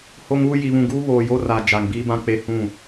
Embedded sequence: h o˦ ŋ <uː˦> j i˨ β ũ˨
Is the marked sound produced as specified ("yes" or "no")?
yes